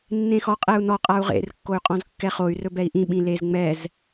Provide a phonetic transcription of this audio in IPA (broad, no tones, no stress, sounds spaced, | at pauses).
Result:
nː ẽ x ɔ qʼ ɛ u̯ n ɔ qʼ a u̯ ʁ ḛ r kː o y̯ qʼ ɔ̃ z kː ɛ χ o y̯ r ɵ b ɛ i̯ ʔ ĩ ɓ ĩ l e z ŋ͡m ɛ z